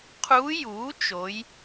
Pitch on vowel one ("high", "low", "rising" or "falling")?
rising